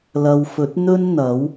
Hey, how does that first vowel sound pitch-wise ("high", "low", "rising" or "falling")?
low